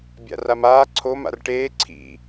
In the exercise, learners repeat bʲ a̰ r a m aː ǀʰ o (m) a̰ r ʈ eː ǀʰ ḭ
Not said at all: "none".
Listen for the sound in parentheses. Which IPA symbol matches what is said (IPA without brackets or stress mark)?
m